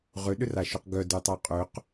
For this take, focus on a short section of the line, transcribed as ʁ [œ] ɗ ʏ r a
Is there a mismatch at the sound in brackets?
yes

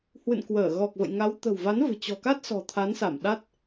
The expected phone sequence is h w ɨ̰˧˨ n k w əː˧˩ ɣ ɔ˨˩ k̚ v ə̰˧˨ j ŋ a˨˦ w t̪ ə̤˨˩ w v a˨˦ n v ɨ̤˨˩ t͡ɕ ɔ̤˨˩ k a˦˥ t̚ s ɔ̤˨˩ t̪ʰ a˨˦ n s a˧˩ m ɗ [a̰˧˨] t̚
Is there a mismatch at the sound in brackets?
yes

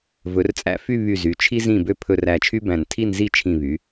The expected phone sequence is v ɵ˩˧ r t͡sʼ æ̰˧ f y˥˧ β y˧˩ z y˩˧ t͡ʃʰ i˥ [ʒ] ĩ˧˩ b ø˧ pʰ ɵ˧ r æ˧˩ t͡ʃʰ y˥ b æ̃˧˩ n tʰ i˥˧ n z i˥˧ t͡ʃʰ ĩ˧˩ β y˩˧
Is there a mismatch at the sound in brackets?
yes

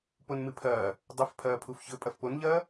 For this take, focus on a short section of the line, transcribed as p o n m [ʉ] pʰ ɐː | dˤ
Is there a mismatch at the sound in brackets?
yes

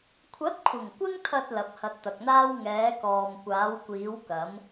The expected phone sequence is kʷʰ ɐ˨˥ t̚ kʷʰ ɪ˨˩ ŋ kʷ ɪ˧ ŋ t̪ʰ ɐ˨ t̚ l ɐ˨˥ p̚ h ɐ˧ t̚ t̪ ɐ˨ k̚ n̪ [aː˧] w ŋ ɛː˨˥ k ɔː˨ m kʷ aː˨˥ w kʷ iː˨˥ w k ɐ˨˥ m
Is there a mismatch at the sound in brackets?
yes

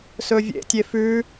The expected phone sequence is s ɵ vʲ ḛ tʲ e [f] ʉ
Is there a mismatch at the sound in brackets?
no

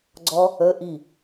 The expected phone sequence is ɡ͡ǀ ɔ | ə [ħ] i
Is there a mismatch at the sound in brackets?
yes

